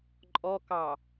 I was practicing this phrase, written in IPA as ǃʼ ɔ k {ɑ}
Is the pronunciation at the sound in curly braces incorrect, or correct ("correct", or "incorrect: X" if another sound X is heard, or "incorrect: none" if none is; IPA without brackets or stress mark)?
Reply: correct